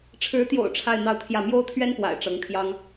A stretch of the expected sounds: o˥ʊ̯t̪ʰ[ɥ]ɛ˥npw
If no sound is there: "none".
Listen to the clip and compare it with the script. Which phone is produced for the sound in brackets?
ɥ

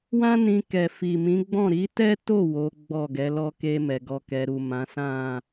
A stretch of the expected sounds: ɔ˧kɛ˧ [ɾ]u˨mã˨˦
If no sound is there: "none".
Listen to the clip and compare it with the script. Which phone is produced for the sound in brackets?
ɾ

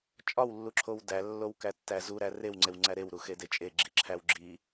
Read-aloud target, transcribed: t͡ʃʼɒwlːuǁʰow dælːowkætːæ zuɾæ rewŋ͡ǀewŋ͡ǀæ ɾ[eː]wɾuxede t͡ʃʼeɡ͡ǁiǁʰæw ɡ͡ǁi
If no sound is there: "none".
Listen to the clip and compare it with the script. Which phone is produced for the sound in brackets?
e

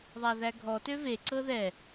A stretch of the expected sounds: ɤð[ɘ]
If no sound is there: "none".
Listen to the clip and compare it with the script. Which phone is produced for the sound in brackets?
ɛ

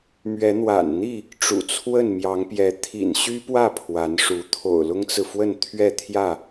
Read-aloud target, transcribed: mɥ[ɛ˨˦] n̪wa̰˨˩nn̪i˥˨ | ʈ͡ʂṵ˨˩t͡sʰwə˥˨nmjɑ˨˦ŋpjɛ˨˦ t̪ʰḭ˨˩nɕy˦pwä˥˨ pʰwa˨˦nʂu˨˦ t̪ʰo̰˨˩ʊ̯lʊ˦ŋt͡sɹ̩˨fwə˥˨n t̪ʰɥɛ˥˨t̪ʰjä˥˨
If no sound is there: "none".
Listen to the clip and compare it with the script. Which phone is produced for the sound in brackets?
ɛ˨˦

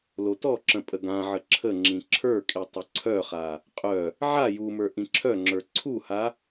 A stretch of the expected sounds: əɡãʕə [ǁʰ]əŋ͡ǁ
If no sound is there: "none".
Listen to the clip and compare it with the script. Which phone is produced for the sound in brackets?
ǁʰ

